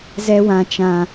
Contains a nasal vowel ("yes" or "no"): yes